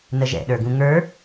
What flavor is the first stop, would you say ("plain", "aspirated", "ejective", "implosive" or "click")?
implosive